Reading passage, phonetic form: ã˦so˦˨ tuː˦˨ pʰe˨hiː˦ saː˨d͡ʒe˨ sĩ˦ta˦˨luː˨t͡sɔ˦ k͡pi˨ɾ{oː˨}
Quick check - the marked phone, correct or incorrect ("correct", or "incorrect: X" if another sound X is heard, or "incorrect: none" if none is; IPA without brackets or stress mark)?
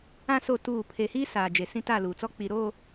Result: incorrect: oː˦˨